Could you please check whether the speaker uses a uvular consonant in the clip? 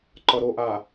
no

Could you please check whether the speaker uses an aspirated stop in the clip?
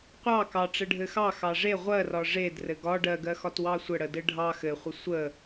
no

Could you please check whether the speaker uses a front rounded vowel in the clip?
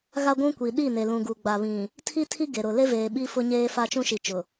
no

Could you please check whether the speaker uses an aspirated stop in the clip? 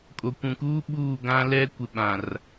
no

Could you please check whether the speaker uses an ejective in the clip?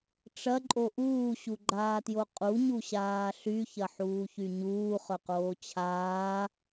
yes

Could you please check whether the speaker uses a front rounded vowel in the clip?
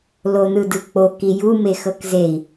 no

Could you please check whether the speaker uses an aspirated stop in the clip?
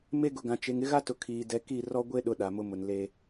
yes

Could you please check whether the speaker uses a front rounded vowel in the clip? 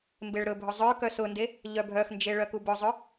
yes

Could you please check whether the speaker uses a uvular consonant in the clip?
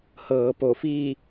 no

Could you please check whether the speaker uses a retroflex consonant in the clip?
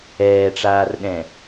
yes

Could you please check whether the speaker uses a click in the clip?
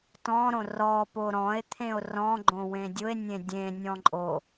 yes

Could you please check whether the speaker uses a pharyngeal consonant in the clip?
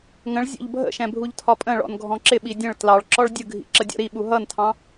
no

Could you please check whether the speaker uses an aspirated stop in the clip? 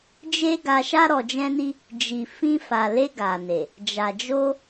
no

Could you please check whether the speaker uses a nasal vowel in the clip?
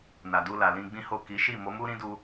yes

